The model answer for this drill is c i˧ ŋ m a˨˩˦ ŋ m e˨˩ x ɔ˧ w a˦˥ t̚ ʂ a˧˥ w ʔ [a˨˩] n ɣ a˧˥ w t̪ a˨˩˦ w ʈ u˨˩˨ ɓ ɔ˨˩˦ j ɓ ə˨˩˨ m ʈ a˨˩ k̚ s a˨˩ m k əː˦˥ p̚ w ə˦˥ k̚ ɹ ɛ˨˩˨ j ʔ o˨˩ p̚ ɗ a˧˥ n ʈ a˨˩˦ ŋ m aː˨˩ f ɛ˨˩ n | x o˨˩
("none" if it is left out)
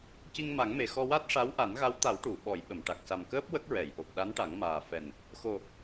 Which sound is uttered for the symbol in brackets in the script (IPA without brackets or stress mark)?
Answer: a˨˩˦